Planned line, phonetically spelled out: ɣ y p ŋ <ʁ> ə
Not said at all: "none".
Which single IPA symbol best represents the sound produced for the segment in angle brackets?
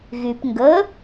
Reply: ɡ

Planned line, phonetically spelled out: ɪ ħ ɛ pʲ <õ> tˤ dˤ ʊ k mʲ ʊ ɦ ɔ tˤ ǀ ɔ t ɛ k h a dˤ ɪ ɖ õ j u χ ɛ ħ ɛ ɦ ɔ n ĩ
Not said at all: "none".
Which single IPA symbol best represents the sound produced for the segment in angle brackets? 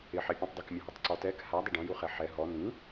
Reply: ũ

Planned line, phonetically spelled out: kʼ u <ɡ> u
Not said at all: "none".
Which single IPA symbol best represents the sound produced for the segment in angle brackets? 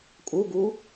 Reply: ɡ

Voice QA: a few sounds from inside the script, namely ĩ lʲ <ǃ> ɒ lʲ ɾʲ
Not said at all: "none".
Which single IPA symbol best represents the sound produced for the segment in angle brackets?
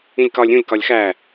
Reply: k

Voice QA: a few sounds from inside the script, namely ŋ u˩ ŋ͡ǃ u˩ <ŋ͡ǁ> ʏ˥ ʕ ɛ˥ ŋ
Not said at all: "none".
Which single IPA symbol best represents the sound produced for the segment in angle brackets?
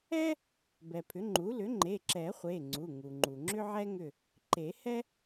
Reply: ŋ͡ǁ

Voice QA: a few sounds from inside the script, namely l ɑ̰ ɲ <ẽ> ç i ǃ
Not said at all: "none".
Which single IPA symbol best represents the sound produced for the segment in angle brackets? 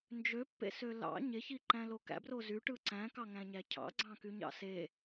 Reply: e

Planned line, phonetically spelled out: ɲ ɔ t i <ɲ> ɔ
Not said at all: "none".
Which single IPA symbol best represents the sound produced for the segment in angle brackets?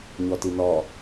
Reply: n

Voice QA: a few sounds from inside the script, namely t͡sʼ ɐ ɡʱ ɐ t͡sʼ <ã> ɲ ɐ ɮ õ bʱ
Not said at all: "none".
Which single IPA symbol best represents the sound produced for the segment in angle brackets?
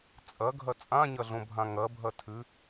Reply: ã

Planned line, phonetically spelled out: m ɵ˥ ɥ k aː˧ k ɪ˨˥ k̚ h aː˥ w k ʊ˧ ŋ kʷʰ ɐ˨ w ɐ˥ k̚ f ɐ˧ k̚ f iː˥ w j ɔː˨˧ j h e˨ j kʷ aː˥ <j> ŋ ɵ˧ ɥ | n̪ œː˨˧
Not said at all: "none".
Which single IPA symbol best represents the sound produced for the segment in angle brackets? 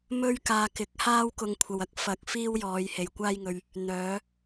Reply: j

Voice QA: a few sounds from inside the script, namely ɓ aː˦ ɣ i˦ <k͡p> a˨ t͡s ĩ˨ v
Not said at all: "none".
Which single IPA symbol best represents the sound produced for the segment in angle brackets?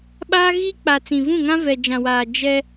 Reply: k͡p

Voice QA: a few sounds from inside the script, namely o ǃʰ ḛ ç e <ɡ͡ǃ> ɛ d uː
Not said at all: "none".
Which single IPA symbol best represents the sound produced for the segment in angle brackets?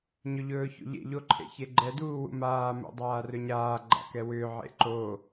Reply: ɡ͡ǃ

